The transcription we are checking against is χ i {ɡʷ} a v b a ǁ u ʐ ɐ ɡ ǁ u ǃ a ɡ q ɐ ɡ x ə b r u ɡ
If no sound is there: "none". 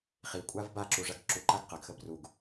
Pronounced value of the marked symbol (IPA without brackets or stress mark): kʷʼ